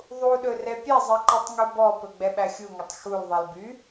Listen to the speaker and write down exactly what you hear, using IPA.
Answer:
ðˤ u ɗ ɵ r ɛ pʲ ɛ zˤ i ǃ i tˤ ŋ u b ɔ p ɵ ɡ͡b ɛ ɓ æ xʲ u ŋ ɵ tˤ x u l ðˤ ɛ l b y

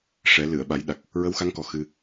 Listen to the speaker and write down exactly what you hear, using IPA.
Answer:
ʂ ɛ˨˩˦ l ɨ˨˩˨ ə̯ ɓ a˨˩˦ j ɗ a˨˩ k̚ | ɹ ə˧˥ w x a˧˥ ŋ k ɔ˨˩ x ɨ˧

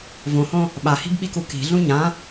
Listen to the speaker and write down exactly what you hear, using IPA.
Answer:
v õ h õ | ɓ a h i̤ b ɓ i k u k i̤ ɮ ũ ɲ ã

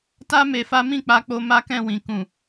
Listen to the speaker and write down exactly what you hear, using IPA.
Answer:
t a˦ m e˧ f a˦ m ĩ˦˨ k͡p a˧ k͡p o˧ m a˦ k ɛ̃˦˨ w ĩ˨ k ũ˨

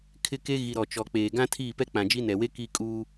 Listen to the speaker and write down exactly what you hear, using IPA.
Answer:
kʰ ɪ˦ k e˦ ɣ i˨ ɾ ɔ˨ t͡ʃ ɔ˨ k͡p eː˨ ɡ ã˦ tʰ iː˦˨ p ɛ˦ k͡p ã˨ d͡ʒ i˦ n ɛ˨ w e˦ k i˦ kʼ uː˦

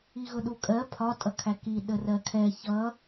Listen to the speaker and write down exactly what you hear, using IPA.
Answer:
i ɣ ʊ ɗ u kʼ ɜ pʰ ɒ tʼ ʌ kʰ æ k i ɗ ə r ɜ kʰ ɛ ç ʌ

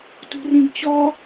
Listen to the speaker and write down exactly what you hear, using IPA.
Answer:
t ṳ r ĩ ɡ t͡ɕ ɔ

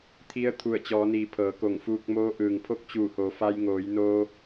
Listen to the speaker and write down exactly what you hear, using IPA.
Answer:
t̪ʰ i˧˥ ə̯ t̪ʰ u˧˩ ə̯ t͡ɕ ɔː˩˧ n iː˩˧ pʰ ɤː˩˧ k o˧˩ ŋ f uː˧ k̚ m oː˧˥ ʔ ɯː˩ ŋ pʰ o˧˥ k̚ t͡ɕ uː˧˩ h o˩˧ f a˧ j ŋ oː˩˧ j n oː˧

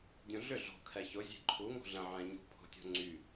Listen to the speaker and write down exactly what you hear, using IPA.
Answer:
dʲ ũ ɮ ʏ ɮ o̤ kʰ ɛ ç ʊ zʲ e̤ ǃʰ u ŋ o̤ ɮ ə̃ ʕ ɛ̃ ɲ ṳ pʰ o̤ tʲ o̤ ŋ͡ǀ y

